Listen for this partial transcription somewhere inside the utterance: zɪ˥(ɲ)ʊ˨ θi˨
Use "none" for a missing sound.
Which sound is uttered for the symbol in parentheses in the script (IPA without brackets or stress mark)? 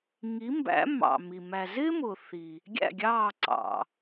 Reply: m